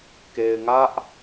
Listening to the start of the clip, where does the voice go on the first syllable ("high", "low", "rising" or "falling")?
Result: low